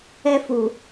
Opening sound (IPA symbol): ɛ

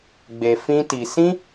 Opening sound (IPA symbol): ɡ͡b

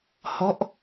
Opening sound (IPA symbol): h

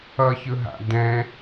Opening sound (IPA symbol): ʌ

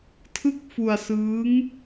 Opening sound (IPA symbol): tʰ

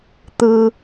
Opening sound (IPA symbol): t̪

